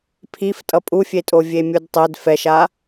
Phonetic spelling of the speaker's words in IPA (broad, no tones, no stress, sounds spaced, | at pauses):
pʰ i f tʼ ʌ pʼ u fʲ e tʼ o vʲ e mʲ u d tˤ ɛ d f ɛ ʃ a